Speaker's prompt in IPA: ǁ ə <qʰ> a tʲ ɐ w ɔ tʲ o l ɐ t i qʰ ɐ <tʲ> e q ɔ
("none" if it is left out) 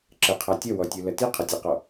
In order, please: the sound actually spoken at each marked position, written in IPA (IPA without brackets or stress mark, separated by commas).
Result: qʰ, tʲ